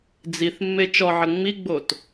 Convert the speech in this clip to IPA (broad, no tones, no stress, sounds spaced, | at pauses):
d͡z i θ mː e t͡ʃ ɔ ʕ ə ŋ͡m i ɡ͡b o t